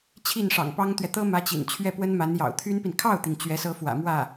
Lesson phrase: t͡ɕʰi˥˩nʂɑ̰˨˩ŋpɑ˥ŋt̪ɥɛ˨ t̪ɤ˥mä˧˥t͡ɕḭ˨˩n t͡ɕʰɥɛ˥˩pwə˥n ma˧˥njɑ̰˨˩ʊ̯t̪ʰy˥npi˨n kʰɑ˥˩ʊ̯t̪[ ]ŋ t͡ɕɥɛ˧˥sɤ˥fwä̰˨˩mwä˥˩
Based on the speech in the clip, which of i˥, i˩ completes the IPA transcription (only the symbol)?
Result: i˩